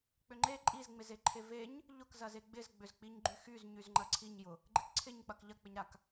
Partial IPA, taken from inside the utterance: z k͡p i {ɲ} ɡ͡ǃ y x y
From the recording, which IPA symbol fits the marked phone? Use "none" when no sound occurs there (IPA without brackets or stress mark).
ɲ